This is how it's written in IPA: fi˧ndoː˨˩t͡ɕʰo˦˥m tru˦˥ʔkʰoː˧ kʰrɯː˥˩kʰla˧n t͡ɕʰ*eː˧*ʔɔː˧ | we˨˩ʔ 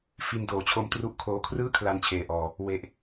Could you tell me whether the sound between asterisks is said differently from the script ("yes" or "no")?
no